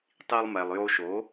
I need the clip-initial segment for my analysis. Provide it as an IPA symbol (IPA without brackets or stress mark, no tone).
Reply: tˤ